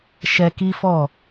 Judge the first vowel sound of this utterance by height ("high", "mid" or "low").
mid